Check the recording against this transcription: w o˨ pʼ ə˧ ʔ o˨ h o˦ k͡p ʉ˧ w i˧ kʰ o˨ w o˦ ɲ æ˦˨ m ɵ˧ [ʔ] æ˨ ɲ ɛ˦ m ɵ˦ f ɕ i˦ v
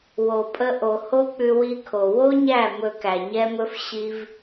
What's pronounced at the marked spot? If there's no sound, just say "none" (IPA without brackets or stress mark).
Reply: k